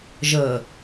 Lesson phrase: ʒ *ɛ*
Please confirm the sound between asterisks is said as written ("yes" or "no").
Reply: no